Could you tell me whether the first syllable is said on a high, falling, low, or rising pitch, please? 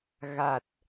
low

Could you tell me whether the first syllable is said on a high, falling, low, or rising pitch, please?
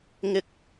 rising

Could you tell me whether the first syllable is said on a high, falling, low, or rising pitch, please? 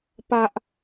high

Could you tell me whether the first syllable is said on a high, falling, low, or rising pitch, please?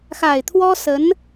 low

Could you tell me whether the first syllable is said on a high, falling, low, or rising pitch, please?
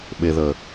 low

